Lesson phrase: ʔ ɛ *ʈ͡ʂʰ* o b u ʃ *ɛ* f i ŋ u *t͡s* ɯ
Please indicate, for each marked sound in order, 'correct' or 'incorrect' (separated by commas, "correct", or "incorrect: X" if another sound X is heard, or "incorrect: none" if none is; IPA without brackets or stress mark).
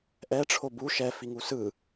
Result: correct, correct, incorrect: s